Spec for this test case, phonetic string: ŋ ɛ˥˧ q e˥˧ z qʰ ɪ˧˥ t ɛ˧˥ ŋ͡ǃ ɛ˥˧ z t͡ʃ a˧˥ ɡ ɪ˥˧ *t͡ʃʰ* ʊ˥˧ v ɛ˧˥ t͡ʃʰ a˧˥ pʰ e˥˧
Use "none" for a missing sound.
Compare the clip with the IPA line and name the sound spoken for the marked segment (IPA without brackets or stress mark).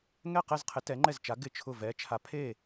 t͡ʃʰ